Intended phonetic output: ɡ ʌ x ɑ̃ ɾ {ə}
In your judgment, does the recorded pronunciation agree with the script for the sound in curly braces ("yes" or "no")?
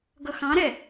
no